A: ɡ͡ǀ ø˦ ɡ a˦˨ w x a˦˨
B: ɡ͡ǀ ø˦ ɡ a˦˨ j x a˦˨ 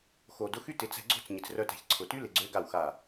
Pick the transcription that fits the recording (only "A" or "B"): A